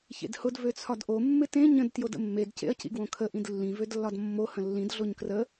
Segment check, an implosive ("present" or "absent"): absent